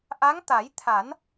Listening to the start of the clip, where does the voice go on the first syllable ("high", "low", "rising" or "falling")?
rising